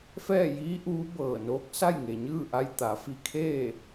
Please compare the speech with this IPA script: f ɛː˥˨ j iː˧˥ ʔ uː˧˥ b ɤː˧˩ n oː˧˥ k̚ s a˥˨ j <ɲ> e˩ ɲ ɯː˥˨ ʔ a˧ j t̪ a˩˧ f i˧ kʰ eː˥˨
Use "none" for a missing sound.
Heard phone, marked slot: ŋ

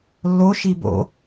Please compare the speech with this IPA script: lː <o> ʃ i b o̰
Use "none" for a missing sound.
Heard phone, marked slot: o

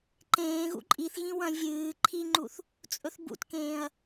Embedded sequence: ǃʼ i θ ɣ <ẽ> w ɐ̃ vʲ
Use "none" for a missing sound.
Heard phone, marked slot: ĩ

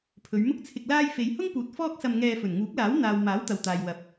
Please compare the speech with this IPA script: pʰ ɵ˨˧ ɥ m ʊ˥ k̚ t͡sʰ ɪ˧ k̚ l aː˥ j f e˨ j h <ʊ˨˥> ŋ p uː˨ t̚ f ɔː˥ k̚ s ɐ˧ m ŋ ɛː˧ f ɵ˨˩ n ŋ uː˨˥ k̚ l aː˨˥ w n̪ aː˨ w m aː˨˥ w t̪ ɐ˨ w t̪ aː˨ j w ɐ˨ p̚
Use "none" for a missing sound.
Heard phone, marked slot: ʊ˥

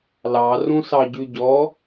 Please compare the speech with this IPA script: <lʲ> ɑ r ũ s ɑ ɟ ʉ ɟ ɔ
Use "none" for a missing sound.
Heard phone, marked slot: l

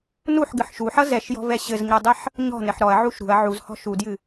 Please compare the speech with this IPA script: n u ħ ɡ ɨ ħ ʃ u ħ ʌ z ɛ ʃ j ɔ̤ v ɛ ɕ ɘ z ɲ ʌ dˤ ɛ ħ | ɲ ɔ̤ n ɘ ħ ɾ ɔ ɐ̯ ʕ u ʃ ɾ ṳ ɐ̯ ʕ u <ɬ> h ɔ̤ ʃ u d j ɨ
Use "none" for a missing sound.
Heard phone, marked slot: z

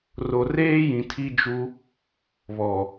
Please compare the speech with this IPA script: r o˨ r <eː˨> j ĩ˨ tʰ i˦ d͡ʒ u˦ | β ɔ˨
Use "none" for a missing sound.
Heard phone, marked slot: eː˦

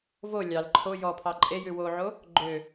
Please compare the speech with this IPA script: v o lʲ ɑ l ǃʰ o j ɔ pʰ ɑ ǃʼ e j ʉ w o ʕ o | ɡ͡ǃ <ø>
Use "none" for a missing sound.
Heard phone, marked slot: ø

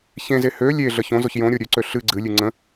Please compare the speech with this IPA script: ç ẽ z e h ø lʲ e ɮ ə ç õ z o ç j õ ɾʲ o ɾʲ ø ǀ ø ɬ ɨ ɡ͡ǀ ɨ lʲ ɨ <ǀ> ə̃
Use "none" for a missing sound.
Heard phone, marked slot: ŋ͡ǀ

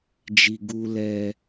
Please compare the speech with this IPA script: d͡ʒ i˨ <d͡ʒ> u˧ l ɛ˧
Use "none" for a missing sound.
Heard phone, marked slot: ɡ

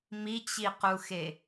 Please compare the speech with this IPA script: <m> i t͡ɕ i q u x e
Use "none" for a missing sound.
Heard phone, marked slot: m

